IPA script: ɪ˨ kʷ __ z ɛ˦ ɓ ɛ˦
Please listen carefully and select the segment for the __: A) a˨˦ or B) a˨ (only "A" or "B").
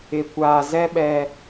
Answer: B